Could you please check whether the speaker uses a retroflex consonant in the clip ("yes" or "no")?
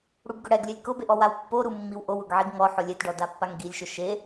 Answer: yes